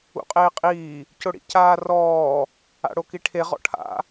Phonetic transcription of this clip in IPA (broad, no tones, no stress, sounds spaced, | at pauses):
ṵ qʼ eː qʼ iː | c ʊ ɽ ḭ c aː r ɔː | a̰ ɽ o k i ʈʰ e ʁ ɔ̰ ʈʰ a̰